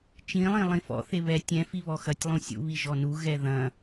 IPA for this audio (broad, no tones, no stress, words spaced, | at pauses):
t͡ʃĩlˠĩ lˠĩfɔ̰ θeβɛ tʲɛ̃ fiβɔxɐtʲlˠũ sʲṵβi ʒɔnu ɣɛðɐ̃